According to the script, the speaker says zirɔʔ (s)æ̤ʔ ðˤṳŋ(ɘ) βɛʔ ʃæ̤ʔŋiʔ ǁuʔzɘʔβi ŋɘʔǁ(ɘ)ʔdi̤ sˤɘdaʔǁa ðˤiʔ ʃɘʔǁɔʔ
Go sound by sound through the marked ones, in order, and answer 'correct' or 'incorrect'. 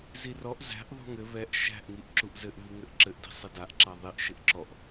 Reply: incorrect: z, correct, correct

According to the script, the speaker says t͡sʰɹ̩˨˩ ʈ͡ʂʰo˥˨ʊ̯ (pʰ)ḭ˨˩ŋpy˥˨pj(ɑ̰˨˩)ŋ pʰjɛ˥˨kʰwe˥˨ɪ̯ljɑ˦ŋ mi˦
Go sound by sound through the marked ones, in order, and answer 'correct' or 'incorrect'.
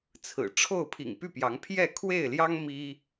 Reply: correct, incorrect: ɑ˨˦

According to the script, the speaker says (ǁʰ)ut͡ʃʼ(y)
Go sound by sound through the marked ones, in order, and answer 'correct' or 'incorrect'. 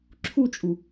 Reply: correct, incorrect: u

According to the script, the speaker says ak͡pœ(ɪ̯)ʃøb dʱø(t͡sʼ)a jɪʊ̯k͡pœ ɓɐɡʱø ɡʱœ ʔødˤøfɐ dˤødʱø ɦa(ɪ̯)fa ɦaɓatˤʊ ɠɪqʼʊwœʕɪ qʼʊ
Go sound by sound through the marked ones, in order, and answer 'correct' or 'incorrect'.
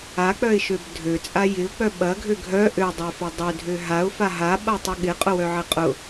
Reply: correct, correct, incorrect: ʊ̯

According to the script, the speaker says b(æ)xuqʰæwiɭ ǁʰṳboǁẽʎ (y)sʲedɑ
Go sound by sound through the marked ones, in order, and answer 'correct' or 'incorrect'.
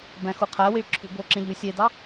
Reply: incorrect: æ̃, correct

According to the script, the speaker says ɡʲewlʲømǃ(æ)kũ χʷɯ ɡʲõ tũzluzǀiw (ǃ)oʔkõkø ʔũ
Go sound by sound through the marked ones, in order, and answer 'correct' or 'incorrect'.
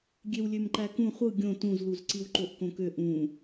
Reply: correct, correct

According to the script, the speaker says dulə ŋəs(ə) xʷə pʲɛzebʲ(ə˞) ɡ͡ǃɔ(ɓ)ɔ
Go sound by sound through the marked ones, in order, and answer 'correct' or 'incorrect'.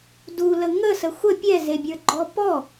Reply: correct, correct, incorrect: p

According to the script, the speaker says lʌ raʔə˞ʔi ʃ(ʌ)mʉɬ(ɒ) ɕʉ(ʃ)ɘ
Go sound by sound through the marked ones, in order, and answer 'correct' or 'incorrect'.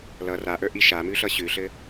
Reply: incorrect: a, incorrect: ʌ, incorrect: ɬ

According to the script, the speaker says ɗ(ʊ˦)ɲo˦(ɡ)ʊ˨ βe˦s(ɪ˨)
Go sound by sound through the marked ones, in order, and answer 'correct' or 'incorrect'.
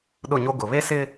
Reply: incorrect: ʊ˦˨, correct, incorrect: ɪ˦

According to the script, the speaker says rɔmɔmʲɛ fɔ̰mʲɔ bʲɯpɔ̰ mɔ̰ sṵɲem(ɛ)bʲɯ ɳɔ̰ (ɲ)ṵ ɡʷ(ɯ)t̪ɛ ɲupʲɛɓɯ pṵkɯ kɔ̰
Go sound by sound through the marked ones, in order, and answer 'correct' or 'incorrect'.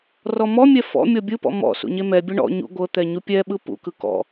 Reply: correct, correct, incorrect: ɤ

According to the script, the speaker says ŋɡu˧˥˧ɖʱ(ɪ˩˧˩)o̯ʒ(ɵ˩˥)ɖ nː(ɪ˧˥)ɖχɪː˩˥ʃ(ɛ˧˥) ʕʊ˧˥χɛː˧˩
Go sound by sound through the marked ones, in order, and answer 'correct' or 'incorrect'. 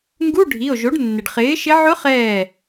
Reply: incorrect: i˩˧˩, incorrect: o˩˥, incorrect: ɪ˩, incorrect: ɪ˧˥

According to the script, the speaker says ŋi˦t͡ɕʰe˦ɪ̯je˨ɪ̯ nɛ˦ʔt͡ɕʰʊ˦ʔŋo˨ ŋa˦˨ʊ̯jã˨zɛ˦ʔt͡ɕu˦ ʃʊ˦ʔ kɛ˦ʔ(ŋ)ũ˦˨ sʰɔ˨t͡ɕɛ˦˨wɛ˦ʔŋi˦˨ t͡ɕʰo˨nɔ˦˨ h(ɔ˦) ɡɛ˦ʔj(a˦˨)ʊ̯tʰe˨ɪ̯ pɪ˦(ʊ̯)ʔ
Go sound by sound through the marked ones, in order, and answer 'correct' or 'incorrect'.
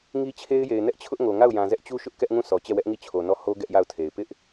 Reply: correct, incorrect: o˦, correct, incorrect: none

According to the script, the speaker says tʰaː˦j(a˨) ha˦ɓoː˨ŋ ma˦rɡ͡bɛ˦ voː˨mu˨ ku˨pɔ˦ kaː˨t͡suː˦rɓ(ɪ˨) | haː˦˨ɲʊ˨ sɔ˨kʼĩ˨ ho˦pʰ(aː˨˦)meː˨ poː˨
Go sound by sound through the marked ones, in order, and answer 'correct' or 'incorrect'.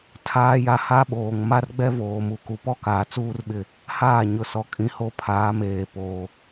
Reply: incorrect: a˦, incorrect: ɪ˦˨, correct

